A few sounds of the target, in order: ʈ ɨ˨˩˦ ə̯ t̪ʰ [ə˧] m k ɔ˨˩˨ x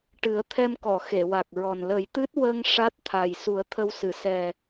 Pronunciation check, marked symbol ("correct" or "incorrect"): incorrect